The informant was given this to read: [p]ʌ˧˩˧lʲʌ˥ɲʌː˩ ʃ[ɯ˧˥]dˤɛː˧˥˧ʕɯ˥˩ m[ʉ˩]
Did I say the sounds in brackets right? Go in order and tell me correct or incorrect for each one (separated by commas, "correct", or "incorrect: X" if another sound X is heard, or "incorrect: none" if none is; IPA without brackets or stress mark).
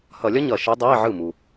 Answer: incorrect: h, correct, incorrect: u˩